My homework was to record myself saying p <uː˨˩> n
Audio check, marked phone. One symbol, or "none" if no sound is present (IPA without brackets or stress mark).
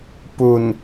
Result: u˨˩